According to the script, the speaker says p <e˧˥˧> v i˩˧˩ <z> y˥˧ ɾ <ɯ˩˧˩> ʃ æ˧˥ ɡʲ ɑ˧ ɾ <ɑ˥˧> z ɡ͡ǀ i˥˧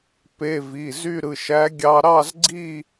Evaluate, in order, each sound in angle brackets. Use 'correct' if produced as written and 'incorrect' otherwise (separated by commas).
correct, correct, correct, correct